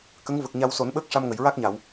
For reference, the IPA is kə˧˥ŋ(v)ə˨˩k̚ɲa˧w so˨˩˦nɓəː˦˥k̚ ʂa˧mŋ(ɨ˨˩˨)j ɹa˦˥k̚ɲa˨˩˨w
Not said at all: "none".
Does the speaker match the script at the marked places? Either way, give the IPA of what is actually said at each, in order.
v, ə˨˩˨

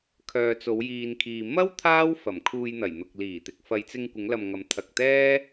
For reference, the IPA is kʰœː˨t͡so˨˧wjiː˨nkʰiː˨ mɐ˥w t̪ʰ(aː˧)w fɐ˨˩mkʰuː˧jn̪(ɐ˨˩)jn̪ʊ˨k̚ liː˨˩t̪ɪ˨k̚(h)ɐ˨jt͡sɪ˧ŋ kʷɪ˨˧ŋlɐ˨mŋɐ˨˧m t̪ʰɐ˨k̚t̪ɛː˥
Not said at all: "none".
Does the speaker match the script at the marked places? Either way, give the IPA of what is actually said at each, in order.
aː˥, ɐ˨˩, f

